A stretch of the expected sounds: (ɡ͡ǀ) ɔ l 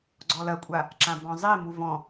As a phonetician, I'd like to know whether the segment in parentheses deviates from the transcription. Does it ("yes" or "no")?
no